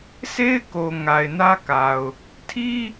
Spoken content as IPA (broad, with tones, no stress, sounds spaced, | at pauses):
sʰ e˦ ɪ̯ k o˨ ŋ a˨ ɪ̯ n ä˦ k a˨ ʊ̯ | tʰ i˦